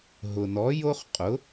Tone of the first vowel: low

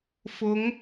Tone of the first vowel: rising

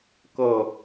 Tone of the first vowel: falling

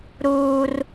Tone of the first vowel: high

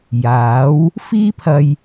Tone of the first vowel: rising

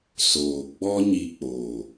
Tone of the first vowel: low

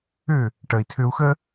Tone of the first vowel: falling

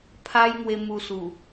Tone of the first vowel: high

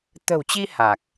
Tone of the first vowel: low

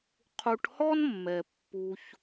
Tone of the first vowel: low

